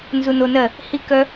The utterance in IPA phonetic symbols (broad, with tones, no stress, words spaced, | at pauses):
nzu˧no˧nɜ˦˨ | hi˦kœ˦